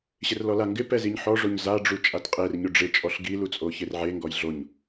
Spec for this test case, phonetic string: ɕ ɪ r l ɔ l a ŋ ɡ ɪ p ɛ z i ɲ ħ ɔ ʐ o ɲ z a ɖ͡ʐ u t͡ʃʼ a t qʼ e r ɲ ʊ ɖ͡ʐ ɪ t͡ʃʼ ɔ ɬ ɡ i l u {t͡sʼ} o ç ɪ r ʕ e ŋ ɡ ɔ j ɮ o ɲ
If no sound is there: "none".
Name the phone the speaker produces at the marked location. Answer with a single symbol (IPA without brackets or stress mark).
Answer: t͡sʼ